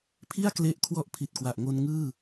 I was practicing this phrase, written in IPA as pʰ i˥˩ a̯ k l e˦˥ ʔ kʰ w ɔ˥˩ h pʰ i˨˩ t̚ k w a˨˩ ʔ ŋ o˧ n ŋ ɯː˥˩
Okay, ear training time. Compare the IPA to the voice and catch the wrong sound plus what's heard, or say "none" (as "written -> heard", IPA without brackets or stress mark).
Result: h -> ʔ